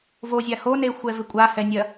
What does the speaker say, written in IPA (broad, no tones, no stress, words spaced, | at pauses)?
vozʲa honexʷɛvɪ kʷʼahɛnʲɐ